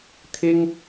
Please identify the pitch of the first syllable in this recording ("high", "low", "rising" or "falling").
high